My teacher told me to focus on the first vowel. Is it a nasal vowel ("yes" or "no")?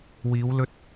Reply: no